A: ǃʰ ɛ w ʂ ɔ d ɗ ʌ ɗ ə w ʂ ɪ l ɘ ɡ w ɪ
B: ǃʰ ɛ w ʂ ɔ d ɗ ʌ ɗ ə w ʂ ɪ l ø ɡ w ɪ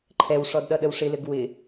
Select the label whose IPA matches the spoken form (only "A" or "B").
A